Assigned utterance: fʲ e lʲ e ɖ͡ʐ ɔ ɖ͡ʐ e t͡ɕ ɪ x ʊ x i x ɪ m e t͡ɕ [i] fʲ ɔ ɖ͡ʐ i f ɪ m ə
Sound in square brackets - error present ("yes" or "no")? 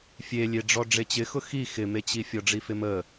no